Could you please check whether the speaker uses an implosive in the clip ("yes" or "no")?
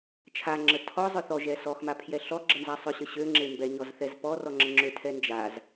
no